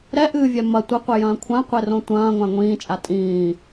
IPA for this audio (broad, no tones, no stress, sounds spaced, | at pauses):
ɾ ɛ ʔ ɨː vʲ ɛ m ɐ tʷ ɘ qʷ ɛ j ɐ̃ː kʷʰ ã qʷ e r õ tʷ ɐ̃ː ŋʷ ã ŋʷ ĩː t͡ʃʼ a tʼ ĩː